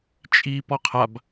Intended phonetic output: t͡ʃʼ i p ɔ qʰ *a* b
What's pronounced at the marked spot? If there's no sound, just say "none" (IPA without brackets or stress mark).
a